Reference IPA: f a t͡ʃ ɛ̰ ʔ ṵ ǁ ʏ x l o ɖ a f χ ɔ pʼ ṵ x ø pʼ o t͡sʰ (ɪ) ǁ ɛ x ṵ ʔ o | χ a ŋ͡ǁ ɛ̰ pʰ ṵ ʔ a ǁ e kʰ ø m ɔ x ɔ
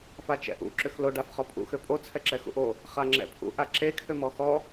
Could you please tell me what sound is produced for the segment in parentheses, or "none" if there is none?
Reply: ɛ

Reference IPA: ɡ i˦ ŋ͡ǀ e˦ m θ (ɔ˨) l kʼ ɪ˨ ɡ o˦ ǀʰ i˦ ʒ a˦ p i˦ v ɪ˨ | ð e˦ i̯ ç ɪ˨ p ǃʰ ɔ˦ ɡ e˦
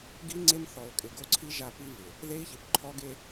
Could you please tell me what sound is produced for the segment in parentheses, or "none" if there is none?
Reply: ɔ˨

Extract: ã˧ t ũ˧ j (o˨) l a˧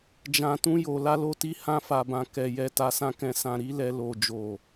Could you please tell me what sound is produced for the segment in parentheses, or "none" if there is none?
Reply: o˨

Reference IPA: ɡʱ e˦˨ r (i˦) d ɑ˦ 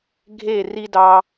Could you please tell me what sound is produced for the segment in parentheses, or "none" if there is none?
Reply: i˦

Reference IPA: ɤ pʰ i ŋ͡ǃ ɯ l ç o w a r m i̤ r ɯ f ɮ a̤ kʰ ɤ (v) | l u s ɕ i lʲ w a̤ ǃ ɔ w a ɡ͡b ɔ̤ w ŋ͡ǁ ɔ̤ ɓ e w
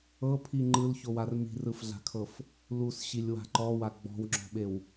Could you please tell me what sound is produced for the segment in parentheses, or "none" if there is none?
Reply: f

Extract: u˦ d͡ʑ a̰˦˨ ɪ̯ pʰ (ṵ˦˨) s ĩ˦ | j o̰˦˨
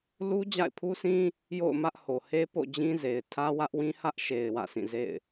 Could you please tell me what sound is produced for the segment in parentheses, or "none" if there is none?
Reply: u˦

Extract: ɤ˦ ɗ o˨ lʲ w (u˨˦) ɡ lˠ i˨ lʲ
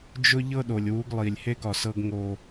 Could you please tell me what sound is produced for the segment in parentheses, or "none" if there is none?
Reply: u˨˦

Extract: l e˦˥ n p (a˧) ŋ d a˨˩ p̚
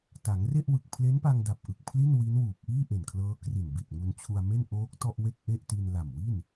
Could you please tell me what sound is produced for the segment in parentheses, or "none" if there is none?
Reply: a˧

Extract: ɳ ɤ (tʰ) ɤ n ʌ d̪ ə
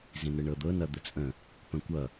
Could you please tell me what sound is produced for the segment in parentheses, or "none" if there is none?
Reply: d̪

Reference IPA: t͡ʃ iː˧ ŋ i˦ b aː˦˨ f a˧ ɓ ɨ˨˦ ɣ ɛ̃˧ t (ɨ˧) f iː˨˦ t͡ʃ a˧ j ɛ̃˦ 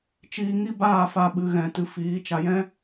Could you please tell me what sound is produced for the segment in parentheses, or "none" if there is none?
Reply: ɨ˧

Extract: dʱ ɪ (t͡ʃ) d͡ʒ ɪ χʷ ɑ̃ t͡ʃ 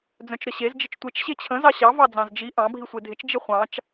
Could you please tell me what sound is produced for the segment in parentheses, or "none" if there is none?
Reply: t͡ʃ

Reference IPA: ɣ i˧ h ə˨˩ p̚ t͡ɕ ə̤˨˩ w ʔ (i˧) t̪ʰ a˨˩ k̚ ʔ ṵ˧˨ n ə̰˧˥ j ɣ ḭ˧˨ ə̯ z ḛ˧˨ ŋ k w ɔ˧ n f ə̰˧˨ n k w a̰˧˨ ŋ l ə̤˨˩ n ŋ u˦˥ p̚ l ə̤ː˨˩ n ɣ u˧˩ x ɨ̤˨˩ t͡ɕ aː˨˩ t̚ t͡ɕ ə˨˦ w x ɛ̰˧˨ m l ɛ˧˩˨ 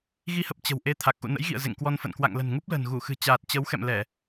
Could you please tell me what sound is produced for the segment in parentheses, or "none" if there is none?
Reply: e˧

